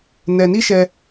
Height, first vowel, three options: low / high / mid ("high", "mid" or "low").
mid